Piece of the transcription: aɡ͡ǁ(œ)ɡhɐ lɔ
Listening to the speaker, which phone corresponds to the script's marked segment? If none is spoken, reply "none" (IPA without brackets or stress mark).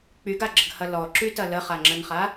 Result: ə